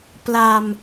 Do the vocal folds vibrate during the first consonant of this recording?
no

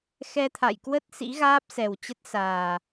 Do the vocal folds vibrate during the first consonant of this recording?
no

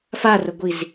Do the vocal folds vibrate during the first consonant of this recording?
no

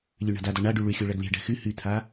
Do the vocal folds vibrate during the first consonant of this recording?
yes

